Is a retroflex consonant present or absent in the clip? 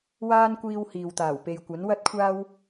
absent